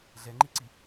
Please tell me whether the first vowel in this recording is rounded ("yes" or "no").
no